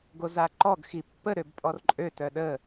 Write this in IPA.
ɡ o z a ǃ ɔ ɡ x i pː ə ɾ ø b pʼ ɔ r ǃʼ ø t œ ɗ ə

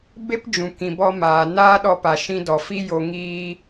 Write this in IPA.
b e˦ p d͡ʒ ũ˨ k ĩ˨ b ɔ˧ m aː˨ n aː˦ ɗ ɔ˧ p a˨ ʃ ĩ˧ d ɔ˨ f i˦ j o˧ ŋ iː˦

